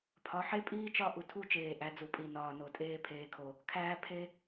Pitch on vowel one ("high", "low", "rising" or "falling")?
rising